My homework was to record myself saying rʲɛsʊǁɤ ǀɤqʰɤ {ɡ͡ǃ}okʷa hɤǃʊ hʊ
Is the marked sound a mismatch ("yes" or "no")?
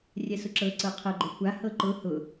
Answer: no